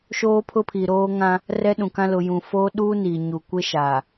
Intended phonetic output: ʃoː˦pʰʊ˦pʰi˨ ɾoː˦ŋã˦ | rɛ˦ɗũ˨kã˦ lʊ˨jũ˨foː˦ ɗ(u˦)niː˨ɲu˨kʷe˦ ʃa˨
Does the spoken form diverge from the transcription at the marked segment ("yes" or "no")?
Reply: yes